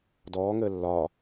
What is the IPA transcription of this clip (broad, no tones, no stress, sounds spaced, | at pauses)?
d ɔː ŋ əː lː ɒː